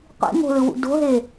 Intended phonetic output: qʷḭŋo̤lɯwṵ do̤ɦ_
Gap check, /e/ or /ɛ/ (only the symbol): e